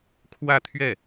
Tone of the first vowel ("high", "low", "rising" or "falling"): falling